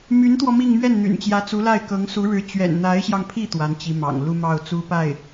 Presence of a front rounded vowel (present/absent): present